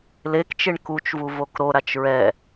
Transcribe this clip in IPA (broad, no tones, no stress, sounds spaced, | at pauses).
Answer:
l e k t͡ʃ e ɳ k u t͡ʃ v u v o k ɾ o ɾ a t͡ʃ ɹ ɛ